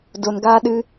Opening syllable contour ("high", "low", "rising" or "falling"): low